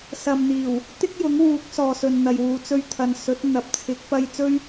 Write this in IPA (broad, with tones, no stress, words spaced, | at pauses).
sɐ˨mn̪iː˨˩w | t̪ɪ˥k̚jʊ˨˥ŋwuː˨˥k̚ sɔː˨sɵ˨nn̪ɐ˨jwuː˨ t͡sɵ˧ɥt̪ʰɐ˨nsɵ˨˥t̚ n̪ɐ˨p̚ t͡sʰɪ˨˥k̚pɐ˧j t͡sɵ˥ɥ